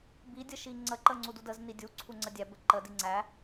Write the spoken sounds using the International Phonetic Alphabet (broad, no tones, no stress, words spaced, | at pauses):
bidʲə ʃiŋ͡ǀəǃə ŋ͡ǀududəzni dʲuǀʰu ŋ͡ǀədʲæbə ǃədi ŋ͡ǀæ